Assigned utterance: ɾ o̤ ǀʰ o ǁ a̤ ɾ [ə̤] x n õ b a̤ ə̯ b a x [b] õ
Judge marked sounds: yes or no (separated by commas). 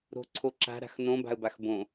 no, yes